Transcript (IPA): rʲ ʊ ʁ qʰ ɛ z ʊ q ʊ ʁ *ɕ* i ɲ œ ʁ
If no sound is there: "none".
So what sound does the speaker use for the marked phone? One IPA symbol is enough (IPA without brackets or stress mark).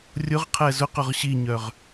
ɕ